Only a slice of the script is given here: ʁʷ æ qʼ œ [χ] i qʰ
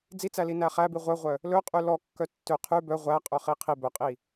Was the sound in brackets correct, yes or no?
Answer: yes